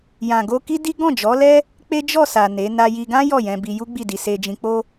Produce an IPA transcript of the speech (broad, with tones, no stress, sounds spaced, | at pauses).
j ã˨ ɡ o˧ k i˦ d i˦ ɡ ɔ̃˦˨ d͡ʒ ɔ˨˦ l ɛ˦ | k͡p e˦ d͡ʒ ɔ˦˨ s a˨ n e˨˦ n a˧ j i˧ ɡ ã˦ j ɔ˦˨ j ɛ̃˧ b i˧ j u˦ ɡ͡b i˦˨ d i˧ s e˧ d͡ʒ ĩ˧ k͡p o˦